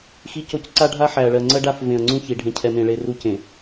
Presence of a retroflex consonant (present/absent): present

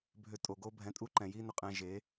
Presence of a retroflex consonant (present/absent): absent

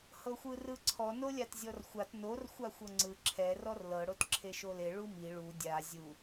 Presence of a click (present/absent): present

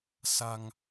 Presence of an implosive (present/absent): absent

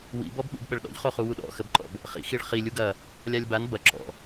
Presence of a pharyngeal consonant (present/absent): absent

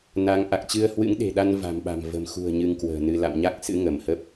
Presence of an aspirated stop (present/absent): absent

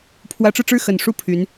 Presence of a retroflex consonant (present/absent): present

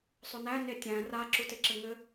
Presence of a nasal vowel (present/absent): present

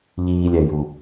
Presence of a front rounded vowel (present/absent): absent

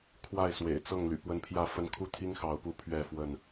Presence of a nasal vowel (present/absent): absent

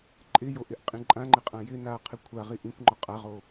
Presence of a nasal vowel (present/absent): present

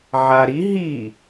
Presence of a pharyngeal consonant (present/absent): present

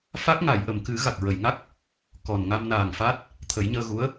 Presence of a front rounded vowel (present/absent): absent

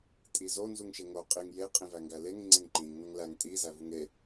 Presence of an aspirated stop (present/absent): absent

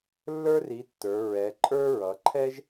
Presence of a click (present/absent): present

